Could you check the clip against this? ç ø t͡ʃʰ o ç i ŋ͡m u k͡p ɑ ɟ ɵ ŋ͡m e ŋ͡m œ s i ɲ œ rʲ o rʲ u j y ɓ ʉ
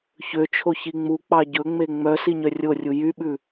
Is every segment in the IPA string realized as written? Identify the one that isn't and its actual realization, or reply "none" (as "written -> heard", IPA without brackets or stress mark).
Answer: none